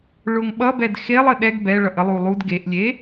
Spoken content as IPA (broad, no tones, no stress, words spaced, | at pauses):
ɭʊŋɓʌbɛd xelˠə ɗɛɡ bɛ ɭʌʔəlˠu lˠud ɡeʔlʲe